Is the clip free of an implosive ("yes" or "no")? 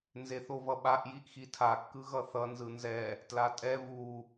no